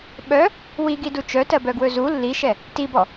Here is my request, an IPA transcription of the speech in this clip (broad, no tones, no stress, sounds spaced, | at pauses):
ɓ œ | w i ɡ i d u t͡ʃ œ t ɜ b œ ɡ w ɵ z u lː i ʃ ɛ | t i b ɔ